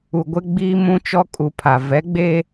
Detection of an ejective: present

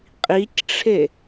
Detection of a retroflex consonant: present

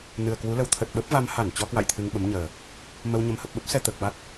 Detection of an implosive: present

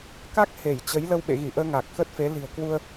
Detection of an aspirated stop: absent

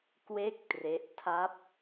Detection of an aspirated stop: present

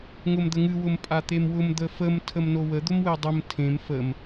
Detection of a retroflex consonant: absent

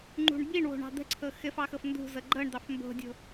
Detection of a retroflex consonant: present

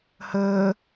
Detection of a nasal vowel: absent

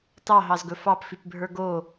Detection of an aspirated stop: absent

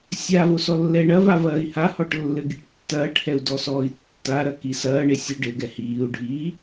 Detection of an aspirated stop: absent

